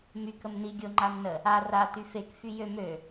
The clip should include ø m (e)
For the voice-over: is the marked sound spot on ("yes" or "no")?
no